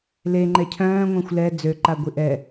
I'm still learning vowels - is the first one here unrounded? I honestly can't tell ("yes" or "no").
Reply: yes